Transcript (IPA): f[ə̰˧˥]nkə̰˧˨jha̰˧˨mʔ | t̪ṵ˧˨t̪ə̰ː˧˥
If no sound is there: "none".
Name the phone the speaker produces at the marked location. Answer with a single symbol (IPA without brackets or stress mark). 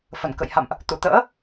ə˧˩